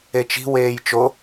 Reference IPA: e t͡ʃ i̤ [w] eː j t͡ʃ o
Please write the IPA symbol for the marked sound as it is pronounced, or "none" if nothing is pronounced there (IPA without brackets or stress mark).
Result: w